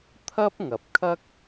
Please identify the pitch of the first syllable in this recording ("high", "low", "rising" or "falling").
high